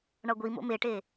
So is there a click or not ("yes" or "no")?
no